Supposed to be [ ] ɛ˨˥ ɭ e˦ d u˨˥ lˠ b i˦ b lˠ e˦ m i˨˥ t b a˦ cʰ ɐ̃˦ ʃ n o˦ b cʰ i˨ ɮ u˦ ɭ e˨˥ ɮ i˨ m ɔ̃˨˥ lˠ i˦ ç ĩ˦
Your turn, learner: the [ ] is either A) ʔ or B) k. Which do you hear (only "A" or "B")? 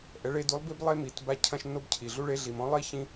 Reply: A